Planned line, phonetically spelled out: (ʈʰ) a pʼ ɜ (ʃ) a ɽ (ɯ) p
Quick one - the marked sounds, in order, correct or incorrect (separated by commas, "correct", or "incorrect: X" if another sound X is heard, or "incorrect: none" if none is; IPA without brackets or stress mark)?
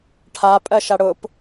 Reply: correct, correct, incorrect: ʊ